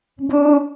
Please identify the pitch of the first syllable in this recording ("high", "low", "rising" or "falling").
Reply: high